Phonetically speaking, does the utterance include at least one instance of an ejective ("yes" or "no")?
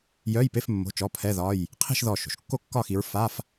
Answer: no